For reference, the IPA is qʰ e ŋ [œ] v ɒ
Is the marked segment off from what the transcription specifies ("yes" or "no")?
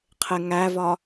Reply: yes